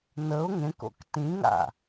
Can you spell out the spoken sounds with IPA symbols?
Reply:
nəʊ̯ ŋẽko̰k tĩŋa̰

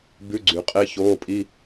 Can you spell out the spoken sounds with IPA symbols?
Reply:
bʉ˧˥˧ɡ͡ǀy˩˧ qʼe˧˥˧ çoː˧˥˧pʼi˧˥˧

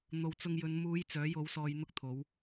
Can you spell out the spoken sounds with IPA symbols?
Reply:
n̪o˨˧wt͡sʊ˧ŋjɵ˨˧n muː˨˧j t͡sœː˨˥jo˨˧w sɔː˧jn̪ʊ˥k̚t̪ʰo˨˥w

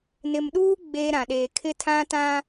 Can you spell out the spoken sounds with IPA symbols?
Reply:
nɪ˨mɗuː˦ ɡ͡beː˦ɾã˨ɗeː˨ kʰɪ˦ tʰã˦tã˦

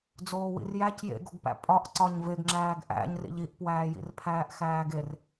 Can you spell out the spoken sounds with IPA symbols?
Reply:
d͡zoːwḭrjæc jḛɡoɡpæ̰ pʼɒʔ ǀɒɲveɡ ŋ͡ǁæːɡʔæ̰ɲrḭʎ iʔpwæːjḭrpʰæːʔ xæːɡer

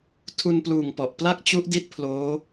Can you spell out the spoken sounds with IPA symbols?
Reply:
tʰu˧npluː˨˩ŋ pɔ˨˩ʔ pla˥˩k̚t͡ɕu˦˥ʔdi˦˥t̚ pʰloː˦˥

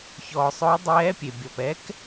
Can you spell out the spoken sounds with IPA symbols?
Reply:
çɔː˩sˤʊː˧˥ dˤɛː˧˥pʲe˩ bʲɔ˩pɛ˧˥k

